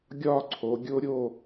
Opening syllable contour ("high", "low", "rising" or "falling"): falling